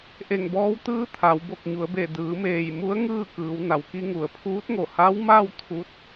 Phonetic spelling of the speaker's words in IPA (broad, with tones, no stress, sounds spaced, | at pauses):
ʔ e˧˩ ŋ b ɔː˧˥ w t̪ ɯː˧˥ t̪ʰ a˩˧ w b o˧˩ k̚ ɲ u˩˧ ə̯ b e˧˩ d ɯː˩˧ m eː˧˩ j m u˧˥ ə̯ ŋ ɯː˥˨ k ɯː˩˧ w n a˩ w k i˧ ŋ u˩ ə̯ pʰ uː˧˥ t̚ ŋ o˧˩ h a˧˥ w m a˥˨ w t̪ʰ u˧˥ t̚